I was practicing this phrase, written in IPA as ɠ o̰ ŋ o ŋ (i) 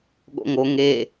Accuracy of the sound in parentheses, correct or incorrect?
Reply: incorrect